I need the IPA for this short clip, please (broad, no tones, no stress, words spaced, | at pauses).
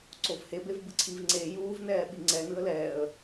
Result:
ǀovhebev bɯǀʰiv ŋ͡ǀe juːvnɛː ɓiŋ͡ǀɛ nɯə̯lɛːə̯